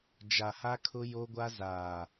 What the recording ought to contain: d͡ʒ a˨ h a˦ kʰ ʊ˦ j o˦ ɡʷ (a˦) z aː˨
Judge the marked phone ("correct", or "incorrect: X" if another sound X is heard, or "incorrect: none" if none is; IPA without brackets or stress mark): correct